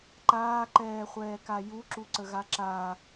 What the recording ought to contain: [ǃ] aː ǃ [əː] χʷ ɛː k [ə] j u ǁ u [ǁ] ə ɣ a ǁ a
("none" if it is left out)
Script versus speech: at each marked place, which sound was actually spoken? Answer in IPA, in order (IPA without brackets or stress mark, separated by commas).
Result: ǃ, ɛː, a, ǀ